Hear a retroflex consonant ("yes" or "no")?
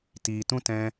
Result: no